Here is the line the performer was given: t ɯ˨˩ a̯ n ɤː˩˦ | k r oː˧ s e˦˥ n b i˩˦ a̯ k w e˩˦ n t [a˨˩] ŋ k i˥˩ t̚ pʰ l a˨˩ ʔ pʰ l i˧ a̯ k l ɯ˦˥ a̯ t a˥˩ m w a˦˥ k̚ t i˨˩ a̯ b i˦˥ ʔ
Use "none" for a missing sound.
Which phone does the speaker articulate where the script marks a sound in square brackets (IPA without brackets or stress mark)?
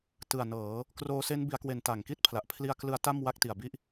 a˨˩